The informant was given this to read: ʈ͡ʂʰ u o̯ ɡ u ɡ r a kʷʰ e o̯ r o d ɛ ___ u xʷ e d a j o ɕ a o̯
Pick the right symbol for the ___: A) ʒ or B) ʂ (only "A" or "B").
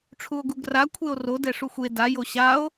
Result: B